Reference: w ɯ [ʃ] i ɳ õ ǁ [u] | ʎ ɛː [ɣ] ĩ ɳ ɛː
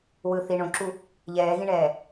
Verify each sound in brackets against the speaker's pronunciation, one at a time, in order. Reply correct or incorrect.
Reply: incorrect, correct, correct

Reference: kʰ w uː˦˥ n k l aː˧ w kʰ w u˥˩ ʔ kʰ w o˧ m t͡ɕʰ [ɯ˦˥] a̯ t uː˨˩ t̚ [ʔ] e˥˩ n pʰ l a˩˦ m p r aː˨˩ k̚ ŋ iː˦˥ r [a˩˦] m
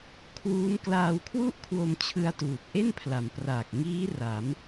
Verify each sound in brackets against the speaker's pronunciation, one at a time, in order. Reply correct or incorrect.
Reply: incorrect, correct, correct

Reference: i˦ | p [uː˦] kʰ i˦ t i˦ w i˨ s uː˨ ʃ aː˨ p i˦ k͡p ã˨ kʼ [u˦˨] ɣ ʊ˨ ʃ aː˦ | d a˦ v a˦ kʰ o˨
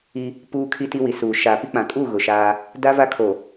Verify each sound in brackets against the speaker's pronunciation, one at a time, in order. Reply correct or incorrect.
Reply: correct, correct

